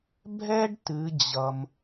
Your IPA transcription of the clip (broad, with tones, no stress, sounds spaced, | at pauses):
bʱ ɛ˥ ɖ t ɨ˩˧ d͡ʑ ʌ˩ m